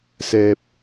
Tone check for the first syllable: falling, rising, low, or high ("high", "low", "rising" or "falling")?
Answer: low